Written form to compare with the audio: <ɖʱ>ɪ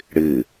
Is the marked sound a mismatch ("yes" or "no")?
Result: yes